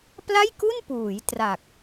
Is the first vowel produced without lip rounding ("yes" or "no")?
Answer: yes